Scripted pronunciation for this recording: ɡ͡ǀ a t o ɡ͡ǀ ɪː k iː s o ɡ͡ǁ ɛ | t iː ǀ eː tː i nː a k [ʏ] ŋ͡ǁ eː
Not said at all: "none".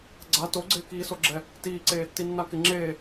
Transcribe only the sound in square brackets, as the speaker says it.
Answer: ɪ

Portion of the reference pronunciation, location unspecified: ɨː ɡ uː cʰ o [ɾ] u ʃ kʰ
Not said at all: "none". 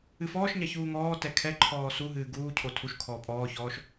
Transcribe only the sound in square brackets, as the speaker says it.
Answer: tʰ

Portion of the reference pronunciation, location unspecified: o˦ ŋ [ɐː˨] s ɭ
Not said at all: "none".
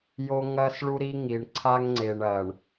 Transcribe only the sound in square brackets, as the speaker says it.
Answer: ɐː˦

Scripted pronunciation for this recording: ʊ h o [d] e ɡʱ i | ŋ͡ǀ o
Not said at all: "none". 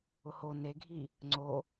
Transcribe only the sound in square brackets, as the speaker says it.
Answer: n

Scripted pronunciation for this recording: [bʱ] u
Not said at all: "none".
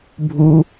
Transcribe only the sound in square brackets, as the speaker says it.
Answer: bʱ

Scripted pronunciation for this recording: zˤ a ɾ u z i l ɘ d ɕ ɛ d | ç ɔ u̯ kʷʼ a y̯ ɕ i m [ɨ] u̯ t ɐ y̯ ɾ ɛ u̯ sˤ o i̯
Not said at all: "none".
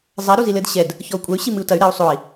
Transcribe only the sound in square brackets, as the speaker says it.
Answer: ɨ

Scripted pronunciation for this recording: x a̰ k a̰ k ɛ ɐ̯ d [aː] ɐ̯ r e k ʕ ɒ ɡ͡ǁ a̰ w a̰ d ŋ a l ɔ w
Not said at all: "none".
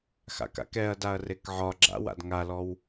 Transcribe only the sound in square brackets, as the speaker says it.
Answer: a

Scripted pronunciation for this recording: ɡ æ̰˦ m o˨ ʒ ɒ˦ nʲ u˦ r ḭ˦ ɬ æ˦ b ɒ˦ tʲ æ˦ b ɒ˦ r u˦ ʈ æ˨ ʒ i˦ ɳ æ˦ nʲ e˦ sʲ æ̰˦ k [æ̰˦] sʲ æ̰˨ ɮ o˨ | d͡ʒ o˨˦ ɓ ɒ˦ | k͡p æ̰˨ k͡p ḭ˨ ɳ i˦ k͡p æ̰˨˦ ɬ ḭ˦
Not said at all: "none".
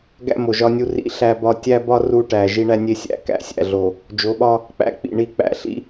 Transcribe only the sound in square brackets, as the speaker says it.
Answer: æ̰˦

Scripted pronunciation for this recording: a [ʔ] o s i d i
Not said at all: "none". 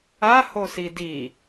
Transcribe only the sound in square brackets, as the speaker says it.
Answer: h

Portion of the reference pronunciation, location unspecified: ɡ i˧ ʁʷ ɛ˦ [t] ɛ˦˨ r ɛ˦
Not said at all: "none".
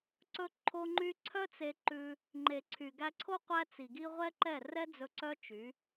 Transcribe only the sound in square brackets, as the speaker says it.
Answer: ǃ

